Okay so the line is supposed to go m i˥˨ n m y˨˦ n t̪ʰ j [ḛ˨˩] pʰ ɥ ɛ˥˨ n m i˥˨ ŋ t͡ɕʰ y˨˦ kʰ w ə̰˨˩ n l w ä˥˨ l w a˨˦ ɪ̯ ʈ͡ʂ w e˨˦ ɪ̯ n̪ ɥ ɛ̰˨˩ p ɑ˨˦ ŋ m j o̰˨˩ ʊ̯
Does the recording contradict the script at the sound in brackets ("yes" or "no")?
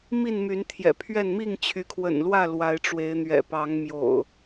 yes